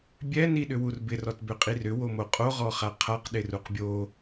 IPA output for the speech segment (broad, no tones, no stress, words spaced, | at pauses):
bʲɛ niɗʏwurbɪ rɔtbʏqʼirʏ womoqʼo ʁɔχaqʰaq ɗɪruqbʲo